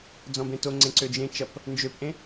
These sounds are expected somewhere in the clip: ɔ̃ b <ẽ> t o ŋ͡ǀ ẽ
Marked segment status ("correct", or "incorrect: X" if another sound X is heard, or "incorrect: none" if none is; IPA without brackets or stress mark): correct